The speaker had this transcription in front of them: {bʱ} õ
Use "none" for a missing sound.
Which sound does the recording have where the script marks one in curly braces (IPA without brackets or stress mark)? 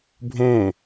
bʱ